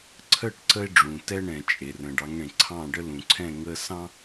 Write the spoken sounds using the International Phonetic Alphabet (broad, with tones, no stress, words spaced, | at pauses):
ǀʰə˦˨ʈ ǀə˦e̯ ɖ͡ʐũ˨tɛ˦ɳɛ̃˨ t͡ʃʼe˨rə̃˨ɖ ɑ˨˦ŋɳẽ˨ ǀʰɑ̃˦˨ ɖə˦lũ˨ǀʰɛ̃˦˨ ŋə˦sɑ̃˦